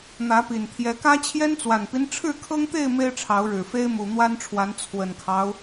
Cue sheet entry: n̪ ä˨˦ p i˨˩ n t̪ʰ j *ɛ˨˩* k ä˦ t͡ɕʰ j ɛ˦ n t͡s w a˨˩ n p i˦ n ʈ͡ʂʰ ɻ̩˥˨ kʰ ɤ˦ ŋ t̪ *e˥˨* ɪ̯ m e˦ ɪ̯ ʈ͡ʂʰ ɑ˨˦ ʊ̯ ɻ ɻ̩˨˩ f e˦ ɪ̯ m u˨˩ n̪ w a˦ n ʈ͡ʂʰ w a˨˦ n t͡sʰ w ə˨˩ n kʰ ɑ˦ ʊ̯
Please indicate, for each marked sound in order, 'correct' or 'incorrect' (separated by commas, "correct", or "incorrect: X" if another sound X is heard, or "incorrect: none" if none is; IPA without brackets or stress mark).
incorrect: ɛ˨˦, correct